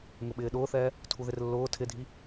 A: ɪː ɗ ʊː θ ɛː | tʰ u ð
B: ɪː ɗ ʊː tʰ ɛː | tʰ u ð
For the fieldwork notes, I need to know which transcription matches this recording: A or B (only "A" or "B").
A